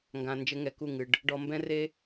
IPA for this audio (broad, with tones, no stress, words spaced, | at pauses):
ŋɡã˨ nd͡ʒɘ˧ŋɛ˨ ku˦˨ŋɨ˨ɖ | ɖɔ˧ mbɛ̃˦re˦